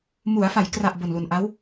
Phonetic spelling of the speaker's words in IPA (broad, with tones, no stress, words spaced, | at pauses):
mu˩˦a̯fa˩˦j kra˨˩ʔ bo˨˩nlu˨˩nʔa˦˥w